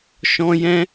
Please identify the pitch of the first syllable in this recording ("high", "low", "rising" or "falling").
high